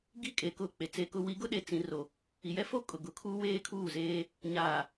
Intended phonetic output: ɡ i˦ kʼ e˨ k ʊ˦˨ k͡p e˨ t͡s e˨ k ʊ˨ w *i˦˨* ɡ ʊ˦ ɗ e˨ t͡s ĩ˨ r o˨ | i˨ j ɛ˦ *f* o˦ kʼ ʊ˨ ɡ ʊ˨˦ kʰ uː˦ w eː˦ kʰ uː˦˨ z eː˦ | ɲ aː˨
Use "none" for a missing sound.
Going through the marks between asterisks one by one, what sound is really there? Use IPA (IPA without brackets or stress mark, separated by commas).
i˨˦, f